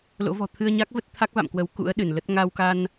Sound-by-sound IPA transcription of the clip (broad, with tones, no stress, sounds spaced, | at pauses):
l o̰˧˥ v ɔ̤˨˩ t̪ʰ ɨ˧ ə̯ ɲ a˦˥ k̚ v ə˦˥ t̚ t̪ʰ a˦˥ k̚ v a̰˧˨ m k w ə˨˦ w k ṵ˧˥ ə̯ ɗ ɨ˧˩ n l ə˦˥ t̚ ŋ a˧ w k a˧ n